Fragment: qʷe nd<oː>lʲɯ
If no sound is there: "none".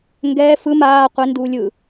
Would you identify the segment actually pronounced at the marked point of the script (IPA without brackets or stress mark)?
uː